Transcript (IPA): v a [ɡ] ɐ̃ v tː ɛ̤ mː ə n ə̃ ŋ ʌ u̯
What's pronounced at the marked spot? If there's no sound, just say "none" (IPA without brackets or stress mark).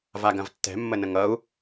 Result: ɡ